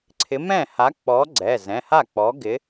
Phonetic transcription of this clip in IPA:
ǀʰ ɪ˨˥ m ɛ̃˥˩ h a˨˥ k͡p ɔ˨˥ ɡ͡ǀ ɛ˩˧˩ z ɛ̃˩˧˩ h a˥˩ k͡p ɔ˨˥ ɡ ɪ˨˥

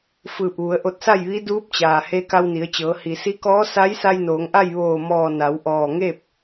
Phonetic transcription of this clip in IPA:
f ɯː˧˩ p̚ ʋ u˩˧ ə̯ ʔ o˧ t̚ s a˥˨ j ʋ i˧˥ d uː˧˥ p̚ t͡ɕ aː˩ h e˧ k a˧ w n i˩˧ ə̯ t͡ɕ ɤː˩˧ h i˩ s i˧˥ k ɔː˧˥ s a˧˥ j s a˧ j n oː˩˧ ŋ ʔ a˥˨ j ʋ oː˧˩ m ɔː˧˩ n a˩˧ w ʔ ɔː˧˩ ŋ e˥˨ p̚

